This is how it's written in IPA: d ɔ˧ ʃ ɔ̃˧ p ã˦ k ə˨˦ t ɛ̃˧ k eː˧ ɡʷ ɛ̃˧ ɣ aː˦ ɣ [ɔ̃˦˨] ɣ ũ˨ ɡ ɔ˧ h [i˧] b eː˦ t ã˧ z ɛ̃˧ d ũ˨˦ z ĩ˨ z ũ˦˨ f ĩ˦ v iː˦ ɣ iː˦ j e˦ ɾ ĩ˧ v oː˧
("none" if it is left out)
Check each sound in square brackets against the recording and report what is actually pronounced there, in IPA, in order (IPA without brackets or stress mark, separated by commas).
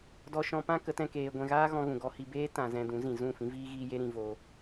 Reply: ɔ̃˧, i˧